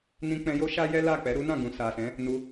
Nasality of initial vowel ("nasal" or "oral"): nasal